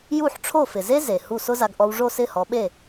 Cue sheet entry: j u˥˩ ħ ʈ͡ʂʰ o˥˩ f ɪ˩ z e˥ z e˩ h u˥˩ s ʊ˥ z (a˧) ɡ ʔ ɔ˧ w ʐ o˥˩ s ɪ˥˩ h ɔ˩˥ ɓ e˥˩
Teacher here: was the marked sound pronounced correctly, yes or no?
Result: yes